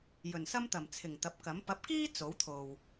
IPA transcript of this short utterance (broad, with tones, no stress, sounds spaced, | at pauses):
j ɵ˨˩ n s ɐ˥ m t̪ ɐ˨˩ m t͡sʰ ɪ˨˩ ŋ t̪ ɐ˨˥ p̚ k ɐ˨˥ m p ɐ˨˥ p̚ k iː˥ t͡s o˨˥ w t̪ʰ o˨ w